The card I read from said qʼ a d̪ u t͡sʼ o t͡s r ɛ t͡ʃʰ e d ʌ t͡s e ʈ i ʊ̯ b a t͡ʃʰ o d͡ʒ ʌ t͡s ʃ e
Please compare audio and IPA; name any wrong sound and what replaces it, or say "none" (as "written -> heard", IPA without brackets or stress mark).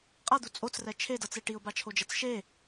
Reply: none